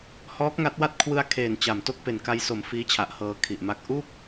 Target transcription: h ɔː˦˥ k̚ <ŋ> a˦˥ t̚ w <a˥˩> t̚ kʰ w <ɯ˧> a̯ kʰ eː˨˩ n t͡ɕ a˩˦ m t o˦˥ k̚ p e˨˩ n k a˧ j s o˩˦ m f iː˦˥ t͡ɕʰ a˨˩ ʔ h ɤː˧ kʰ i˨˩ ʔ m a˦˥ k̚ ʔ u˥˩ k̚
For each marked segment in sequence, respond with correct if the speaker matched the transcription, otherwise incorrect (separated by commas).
correct, correct, correct